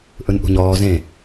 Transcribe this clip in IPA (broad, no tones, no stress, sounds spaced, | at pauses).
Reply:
ʔ ɯ n ʔ ṳ ɲ ɔː z ẽ